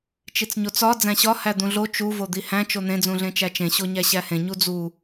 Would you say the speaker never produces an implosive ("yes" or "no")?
yes